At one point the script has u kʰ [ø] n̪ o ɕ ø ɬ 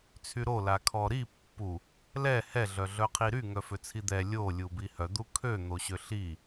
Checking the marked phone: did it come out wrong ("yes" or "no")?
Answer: no